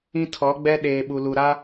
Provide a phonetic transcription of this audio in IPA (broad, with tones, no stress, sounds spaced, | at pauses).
ĩ˦ tʰ ɔ˨˦ ɡ͡b ɛ˦ ɗ eː˨ ɓ u˨ l u˨ ɾ a˦